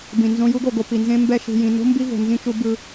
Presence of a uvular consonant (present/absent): absent